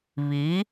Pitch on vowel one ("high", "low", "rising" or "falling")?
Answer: rising